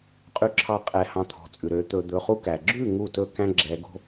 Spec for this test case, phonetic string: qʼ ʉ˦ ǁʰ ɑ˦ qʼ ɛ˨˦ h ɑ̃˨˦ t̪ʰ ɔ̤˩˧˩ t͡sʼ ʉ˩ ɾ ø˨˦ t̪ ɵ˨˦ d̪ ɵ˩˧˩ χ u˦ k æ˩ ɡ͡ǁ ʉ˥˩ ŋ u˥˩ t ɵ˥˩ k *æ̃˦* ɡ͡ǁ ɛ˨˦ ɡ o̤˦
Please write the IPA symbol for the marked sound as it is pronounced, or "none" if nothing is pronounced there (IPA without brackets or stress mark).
æ̃˦